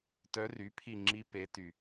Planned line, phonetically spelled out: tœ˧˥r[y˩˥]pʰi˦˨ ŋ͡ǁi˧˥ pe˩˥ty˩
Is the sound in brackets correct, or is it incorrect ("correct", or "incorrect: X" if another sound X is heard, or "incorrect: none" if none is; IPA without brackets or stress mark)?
correct